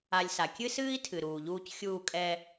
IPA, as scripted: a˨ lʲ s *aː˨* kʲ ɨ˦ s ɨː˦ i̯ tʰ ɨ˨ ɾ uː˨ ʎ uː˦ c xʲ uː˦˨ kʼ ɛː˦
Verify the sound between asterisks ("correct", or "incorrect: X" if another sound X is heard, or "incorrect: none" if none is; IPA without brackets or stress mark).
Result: incorrect: a˨